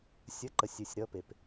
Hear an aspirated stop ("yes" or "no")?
no